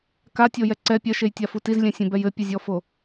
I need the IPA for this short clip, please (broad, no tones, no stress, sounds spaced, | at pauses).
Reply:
k a tʲ o j ɛ ǀ ɛ pʲ ɐ ʃ e j tʲ a f u t i z lʲ ɛ̃ sʲ ẽ b ɛ j ɘ pʲ ɨ zʲ ɔ f o